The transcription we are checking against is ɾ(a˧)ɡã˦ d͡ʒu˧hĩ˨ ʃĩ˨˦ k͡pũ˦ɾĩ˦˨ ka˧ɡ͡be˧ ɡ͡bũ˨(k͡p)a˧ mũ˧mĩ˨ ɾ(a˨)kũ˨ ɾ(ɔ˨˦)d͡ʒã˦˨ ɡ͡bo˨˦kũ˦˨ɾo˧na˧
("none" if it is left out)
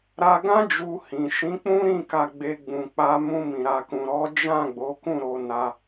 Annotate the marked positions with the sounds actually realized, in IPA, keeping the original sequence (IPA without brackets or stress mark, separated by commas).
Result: a˧, k͡p, a˨, ɔ˨˦